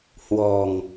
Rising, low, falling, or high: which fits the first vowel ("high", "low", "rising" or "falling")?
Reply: low